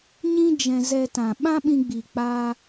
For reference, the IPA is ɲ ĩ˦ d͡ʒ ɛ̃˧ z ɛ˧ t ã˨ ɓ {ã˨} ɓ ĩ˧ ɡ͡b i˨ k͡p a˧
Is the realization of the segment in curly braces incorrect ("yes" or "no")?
yes